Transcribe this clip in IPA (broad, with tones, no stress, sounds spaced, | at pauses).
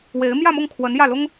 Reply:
w e˧˥ ɪ̯ m j ä˥˧ m ʊ˥˩ ŋ kʰ w ə˧˥ n j ä˥˩ l ʊ˥ ŋ